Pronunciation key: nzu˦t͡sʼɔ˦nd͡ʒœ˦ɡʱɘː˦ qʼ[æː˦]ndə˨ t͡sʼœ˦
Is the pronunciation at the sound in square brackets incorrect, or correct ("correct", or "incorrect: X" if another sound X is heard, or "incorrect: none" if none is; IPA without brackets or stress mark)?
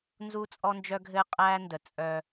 correct